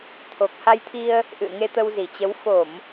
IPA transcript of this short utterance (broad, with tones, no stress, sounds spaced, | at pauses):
t̪ʰ o˨˩ k̚ h a˧ j t̪ʰ i˧ ə̯ | ʔ ɨ̰˧˨ ə̯ ŋ e˧ t̪ ə˧ w z i˧˩ t͡ɕ ə˨˦ w f o˧˩˨ m